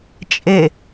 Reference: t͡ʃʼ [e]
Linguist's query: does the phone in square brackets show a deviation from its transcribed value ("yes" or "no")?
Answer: no